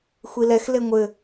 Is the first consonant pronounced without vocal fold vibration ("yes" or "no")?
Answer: yes